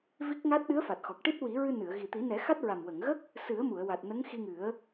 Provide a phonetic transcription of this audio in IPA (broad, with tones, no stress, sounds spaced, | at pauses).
v i˦˥ k̚ ŋ a˦˥ t̚ ɗ ɨ˧˥ ə̯ f a˨˩ t̚ x ɔ˨˩ k̚ ʈ i˦˥ t̚ w i˨˩˦ ɹ ɨ˧ n ɨ˨˩˨ ə̯ ɣ i˨˩ t̪ i˨˩˦ n ɛ˨˩˦ x a˦˥ t̚ ɹ a˨˩ m w ə˨˩˨ ŋ ɣ ə˦˥ k̚ | s ɨ˨˩˦ ə̯ m u˨˩˨ ə̯ w a˨˩ t̚ n ə˧˥ ŋ x i˧ ŋ ɨ˨˩˦ ə̯